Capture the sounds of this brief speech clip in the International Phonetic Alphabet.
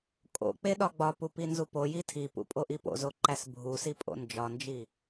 kʼo̰k͡pe ɗɒɡ͡bɒpu pinzupoji tʰipṵ pʼoʔipo̰zo ǃæsbʱusi pʼo̰nd͡ʒɒnd͡ʒi

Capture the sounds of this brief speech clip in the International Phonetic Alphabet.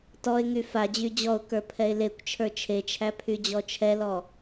tɔɪ̯ŋy fa d͡ʑyd͡ʑɔʊ̯ kə˞pʰɛɪ̯lekʷ t͡ʃʰə˞t͡ʃʰet͡ʃʰæ pʰyd͡ʑɔt͡ʃʰɛlɔ

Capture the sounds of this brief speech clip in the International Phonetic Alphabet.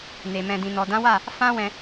ne˨ mɛ̃˨dĩ˨nɔ˨ dã˨˦wa˦˨ | fã˦wɛ̃˧

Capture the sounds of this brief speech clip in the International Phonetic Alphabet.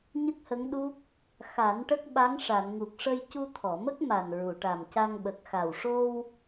ɲə˦˥k̚hə˧˥ŋ ɗu˦˥k̚ | xa˨˩˦n ʈə˦˥k̚ ɓa˧˥ŋʂa˨˩˨nŋu˨˩k̚ ʂə˧jcu˧t̪ʰɔ˨˩˨mə˦˥k̚ ma˨˩nɹu˨˩˨ʈa˨˩mca˧ŋ ɓə˨˩k̚xa˨˩wʂo˧w

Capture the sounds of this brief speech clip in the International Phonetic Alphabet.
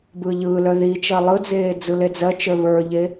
bɯːʎɯːlœ ði t͡ʃɜlˠɯd͡zeː d͡zɯled͡zɜt͡ʃə˞ βə˞ʎe

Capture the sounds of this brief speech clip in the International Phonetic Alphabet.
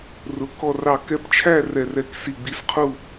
rʊ˧˥kɔ˥˧rɑ˥˧ kɛ˧˥pt͡ʃʰæ˥˧ rɛ˥˧rɛ˥˧ksi˥˧ ɡ͡bi˧˥sqʰu˥˧

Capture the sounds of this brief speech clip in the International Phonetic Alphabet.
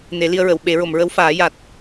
ne˨˩˦li˧ə̯ɹə˨˩˨w ɓe˨˩˦ ɹo˨˩˨mɹə˧˥wfaː˨˩˦ ja˨˩t̚

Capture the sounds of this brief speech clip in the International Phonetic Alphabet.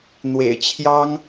n̪wḛ˨˩ɪ̯t͡ɕʰjɑ˥ŋ

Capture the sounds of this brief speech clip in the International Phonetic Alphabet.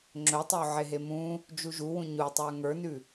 ŋ͡ǁɵtˤo ʕeɦemũ | d͡ʒuʒuwũ ɲutˤə˞ ŋə˞nʉ

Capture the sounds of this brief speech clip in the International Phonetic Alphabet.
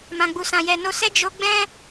mã˨ɡ͡bu˨sã˨ jɛ˨no˧sɛ˦ d͡ʒo˦ ɡ͡bɛ̃˦

